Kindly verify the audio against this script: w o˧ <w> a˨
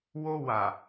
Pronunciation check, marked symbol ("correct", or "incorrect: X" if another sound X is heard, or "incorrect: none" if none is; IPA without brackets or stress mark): correct